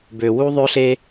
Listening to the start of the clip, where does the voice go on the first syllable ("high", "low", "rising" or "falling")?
low